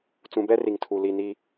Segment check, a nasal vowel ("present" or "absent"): present